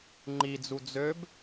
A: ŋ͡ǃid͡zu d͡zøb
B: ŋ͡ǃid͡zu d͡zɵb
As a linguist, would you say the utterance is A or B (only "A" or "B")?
A